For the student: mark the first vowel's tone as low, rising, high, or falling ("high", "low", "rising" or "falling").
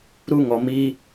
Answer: high